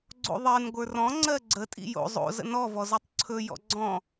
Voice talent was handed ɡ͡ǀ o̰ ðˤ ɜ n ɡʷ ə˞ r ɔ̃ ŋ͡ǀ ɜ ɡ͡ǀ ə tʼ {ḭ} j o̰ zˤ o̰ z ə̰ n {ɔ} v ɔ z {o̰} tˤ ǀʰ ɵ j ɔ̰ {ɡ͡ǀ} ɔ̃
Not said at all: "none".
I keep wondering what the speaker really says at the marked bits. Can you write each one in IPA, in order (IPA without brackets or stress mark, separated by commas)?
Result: ḭ, ɔ, o, ɡ͡ǀ